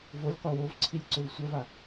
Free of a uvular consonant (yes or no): no